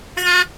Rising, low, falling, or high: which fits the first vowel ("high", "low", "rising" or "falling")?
high